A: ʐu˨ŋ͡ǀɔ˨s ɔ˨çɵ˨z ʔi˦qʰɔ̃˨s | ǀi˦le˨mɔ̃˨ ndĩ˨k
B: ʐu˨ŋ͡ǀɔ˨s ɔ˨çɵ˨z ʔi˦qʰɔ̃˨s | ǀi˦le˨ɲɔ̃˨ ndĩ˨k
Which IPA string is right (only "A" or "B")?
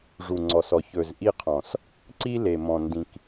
A